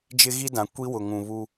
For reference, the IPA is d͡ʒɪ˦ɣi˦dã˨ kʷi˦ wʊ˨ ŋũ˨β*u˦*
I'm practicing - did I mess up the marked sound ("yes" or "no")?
no